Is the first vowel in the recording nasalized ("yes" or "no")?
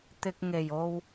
no